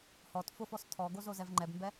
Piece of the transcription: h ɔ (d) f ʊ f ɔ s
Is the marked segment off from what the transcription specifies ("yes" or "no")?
yes